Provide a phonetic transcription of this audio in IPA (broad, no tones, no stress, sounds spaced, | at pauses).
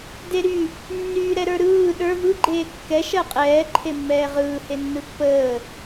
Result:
d e ɾ y | nː yː ɾ ɛ ɾ ə˞ ɾ ɯː ɗ ə˞ v ɯ ɡ͡ǃ eː kː ɛ ʃ ɜ qʼ ɛː ǃʰ e mː ɛː ʁ ɯː h e nː ɯ pː əː